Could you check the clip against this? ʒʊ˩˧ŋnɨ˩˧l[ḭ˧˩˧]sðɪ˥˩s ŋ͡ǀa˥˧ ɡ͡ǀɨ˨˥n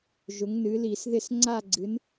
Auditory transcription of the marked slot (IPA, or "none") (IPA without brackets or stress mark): i˧˩˧